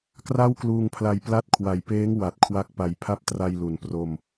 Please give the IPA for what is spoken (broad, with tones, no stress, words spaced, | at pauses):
kra˥˩wkluː˧ŋpʰla˧j pla˦˥t̚kʰwa˨˩jpeː˦˥ŋ wa˨˩t̚kʰwa˦˥k̚pa˨˩j pʰa˦˥p̚tra˧j lu˨˩npro˧m